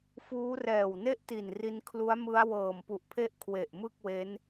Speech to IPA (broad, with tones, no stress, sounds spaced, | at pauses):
f uː˦˥ r ɛː˨˩ w n e˥˩ ʔ t i˨˩ n r i˧ n kʰ l u˦˥ a̯ m ɯ˦˥ a̯ w ɤː˨˩ m p u˨˩ ʔ pʰ e˥˩ ʔ kʰ w e˨˩ ʔ m ɯ˥˩ k̚ w e˦˥ n